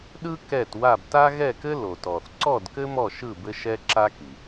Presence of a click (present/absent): present